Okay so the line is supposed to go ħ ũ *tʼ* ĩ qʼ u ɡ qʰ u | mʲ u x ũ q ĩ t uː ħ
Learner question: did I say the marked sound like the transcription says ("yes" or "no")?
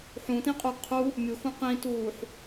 no